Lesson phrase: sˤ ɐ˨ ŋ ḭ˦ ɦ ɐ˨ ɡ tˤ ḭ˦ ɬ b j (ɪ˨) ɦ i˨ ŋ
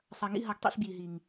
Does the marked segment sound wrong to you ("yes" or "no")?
yes